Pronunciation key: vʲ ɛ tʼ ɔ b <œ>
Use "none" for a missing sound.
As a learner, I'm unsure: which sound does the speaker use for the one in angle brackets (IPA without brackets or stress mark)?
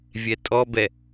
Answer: ɛ